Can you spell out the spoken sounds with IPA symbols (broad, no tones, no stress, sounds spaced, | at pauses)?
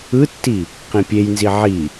ɯ tː i | q ĩ pʲ e j n z i ʕ i